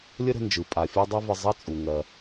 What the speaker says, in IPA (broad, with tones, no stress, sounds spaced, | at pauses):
lʲ ə˥ ɾ ə̤˧ n d͡ʒ ɯ˩ pʼ a˩ fʲ ɑ˥ dˤ ɛ˥ v ə˧ zˤ ɐ˥ t͡sʼ u˩ ŋ ɜ˩